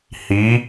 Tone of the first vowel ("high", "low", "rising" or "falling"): rising